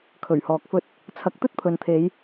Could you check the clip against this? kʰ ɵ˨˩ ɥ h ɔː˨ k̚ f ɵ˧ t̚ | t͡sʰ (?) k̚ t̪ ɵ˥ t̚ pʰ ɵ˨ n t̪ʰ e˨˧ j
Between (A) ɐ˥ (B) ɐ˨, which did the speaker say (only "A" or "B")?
B